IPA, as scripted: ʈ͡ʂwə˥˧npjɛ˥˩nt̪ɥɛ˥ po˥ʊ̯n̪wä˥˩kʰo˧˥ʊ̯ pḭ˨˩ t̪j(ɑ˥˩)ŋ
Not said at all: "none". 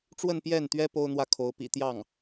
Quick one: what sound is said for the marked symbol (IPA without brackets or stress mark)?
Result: ɑ˥˩